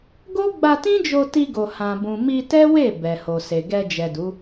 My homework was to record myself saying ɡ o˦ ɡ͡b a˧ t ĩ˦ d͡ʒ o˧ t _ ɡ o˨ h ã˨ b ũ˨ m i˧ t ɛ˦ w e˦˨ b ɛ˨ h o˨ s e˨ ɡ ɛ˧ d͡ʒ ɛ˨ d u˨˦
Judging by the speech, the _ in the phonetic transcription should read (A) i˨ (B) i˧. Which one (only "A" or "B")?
B